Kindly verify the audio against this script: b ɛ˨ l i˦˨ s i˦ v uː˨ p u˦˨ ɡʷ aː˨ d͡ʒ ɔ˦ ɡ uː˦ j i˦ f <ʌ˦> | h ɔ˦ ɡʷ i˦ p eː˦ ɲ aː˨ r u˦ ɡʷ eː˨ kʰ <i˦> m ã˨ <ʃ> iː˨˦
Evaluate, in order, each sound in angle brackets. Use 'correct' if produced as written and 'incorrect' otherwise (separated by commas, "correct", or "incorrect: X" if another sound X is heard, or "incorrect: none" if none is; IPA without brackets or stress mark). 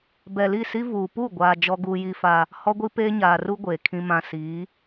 incorrect: a˦, incorrect: ĩ˦, incorrect: s